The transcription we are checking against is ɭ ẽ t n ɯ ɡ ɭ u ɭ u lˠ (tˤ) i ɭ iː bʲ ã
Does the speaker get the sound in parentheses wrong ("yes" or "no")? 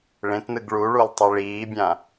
no